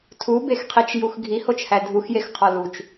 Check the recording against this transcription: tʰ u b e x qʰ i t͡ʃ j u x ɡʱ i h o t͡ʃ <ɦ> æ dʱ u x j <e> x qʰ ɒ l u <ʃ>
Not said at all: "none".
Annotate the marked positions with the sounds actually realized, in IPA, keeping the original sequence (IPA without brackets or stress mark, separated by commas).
h, e, t͡ʃ